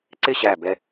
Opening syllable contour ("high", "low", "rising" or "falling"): falling